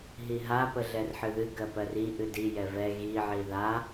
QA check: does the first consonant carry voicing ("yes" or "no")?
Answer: yes